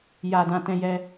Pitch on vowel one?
low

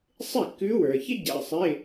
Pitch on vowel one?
falling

